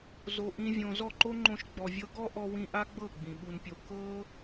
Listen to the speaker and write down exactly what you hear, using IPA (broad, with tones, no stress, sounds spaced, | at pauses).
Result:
z o˨ ʔ ĩ˦ vʲ õ˧ z ɔ˦˨ ǃ o˦ ŋ͡ǃ õ˧ ʃ ɡ͡b ɔ˨ vʲ ɤ˦ ɡ ɔ˦ ʔ ɔ˧ w ĩ˧ ʔ a˦ ɡ͡b ɤ˦˨ ɡ͡b ĩ˨ ɓ u˧ n pʲ o˧ k ɤ˦